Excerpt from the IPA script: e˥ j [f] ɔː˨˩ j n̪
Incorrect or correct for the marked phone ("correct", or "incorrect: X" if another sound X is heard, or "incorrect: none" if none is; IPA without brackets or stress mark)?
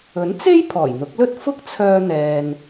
incorrect: pʰ